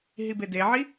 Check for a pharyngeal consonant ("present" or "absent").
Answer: present